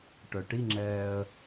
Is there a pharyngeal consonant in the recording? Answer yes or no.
no